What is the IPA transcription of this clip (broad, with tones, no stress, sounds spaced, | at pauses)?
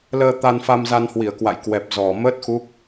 l əː˧ t̪ a˧ n f a˧ m z a˧ n h w i˧˩ ə̯ k w a̰˧˨ j k w ɛ˨˩ p̚ z ɔ˨˩ m əː˦˥ t̚ x u˦˥ k̚